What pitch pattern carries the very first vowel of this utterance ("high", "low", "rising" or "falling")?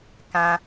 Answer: high